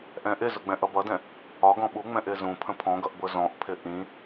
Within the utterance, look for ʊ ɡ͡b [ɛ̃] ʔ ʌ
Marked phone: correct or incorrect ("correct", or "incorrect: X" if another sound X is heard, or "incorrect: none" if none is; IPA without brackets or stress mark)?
correct